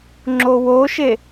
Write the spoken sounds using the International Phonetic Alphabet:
ŋ͡ǁ o w o ʃ e

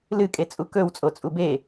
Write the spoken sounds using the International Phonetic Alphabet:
l ɨ kʼ e t͡sʼ u k ɵ w t͡sʼ o t͡sʼ u b e

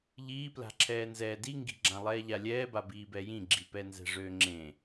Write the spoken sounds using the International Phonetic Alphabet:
ʎ iː p l a̤ ǁʰ ɛː n z ɛː d i ŋ ɡ i̤ ɡ͡ǁ ã lˠ ɛː ʎ a lʲ ɛː b a b iː b ɛ j ĩ ɡ͡ǁ i p ɛ n z ɛ̤ ʐ øː ŋ͡ǁ ẽ

